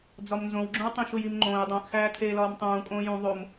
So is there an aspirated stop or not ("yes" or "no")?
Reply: yes